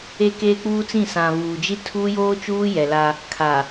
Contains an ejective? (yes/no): no